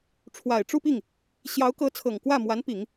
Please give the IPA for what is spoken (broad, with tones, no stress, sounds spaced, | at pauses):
ʈ͡ʂʰ w a˨˩ ɪ̯ ʈ͡ʂ u˥˧ p i˥˩ ŋ | ɕ j ɑ˧˥ ʊ̯ k ɤ˧˥ t͡sʰ ɤ˨˩ ŋ k w ä˥˩ m w a˧˥ n p i˨˩˦ ŋ